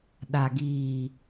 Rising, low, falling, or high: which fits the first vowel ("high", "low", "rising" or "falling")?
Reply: low